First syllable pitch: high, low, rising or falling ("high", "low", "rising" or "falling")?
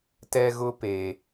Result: high